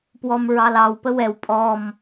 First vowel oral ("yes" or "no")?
yes